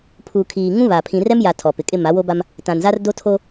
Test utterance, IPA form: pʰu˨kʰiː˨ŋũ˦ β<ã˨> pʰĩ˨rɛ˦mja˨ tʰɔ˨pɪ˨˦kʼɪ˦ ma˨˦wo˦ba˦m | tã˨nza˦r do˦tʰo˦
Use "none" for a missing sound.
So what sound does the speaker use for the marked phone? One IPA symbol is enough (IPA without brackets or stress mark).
a˨